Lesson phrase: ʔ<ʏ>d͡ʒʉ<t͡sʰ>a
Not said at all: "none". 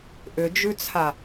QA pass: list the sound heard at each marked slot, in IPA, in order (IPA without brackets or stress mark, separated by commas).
ʏ, t͡sʰ